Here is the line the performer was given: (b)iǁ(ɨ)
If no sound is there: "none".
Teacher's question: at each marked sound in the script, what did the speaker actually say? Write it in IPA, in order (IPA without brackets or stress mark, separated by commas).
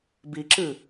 b, ɨ